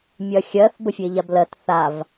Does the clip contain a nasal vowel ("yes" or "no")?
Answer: no